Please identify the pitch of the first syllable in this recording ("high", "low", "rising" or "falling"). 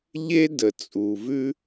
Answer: high